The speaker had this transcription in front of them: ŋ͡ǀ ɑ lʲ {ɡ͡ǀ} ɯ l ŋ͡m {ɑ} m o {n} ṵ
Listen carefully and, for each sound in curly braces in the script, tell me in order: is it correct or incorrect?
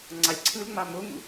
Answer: incorrect: ǀʰ, correct, incorrect: ŋ

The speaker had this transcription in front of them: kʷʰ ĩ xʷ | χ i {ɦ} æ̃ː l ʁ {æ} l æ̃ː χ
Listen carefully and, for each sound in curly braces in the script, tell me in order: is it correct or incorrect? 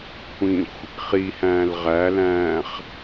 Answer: incorrect: h, correct

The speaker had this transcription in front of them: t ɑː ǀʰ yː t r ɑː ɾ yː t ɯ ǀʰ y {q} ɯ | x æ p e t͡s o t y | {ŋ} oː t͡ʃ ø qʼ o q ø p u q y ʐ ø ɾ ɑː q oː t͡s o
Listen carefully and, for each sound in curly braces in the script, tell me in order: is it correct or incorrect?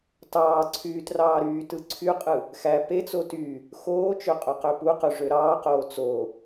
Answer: incorrect: qʼ, incorrect: x

